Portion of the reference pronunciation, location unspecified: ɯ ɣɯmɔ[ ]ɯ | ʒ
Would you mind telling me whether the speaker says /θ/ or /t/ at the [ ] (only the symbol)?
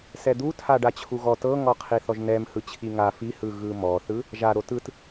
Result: θ